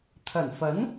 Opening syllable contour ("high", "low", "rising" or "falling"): low